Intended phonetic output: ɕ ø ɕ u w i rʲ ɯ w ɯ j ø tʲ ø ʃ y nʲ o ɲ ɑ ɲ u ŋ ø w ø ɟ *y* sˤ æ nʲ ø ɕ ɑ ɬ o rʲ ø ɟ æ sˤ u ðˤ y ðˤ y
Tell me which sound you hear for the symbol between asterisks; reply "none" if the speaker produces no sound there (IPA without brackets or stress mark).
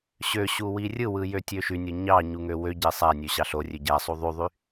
e